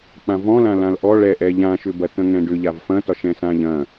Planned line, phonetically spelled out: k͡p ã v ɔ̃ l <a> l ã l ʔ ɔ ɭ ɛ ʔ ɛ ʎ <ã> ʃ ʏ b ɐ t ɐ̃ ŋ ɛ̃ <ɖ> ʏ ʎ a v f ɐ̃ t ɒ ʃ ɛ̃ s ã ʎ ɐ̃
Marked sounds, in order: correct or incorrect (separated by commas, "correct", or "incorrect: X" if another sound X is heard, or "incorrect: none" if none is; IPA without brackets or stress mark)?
incorrect: ã, correct, correct